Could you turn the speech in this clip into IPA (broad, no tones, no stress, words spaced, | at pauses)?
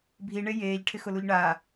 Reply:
bʱiɳe jeːʎʈʰɪxʊluʎ ɳa